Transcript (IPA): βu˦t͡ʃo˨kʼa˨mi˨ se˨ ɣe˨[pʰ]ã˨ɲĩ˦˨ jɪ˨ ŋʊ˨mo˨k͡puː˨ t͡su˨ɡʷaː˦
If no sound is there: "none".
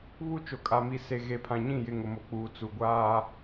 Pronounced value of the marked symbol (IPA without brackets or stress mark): pʰ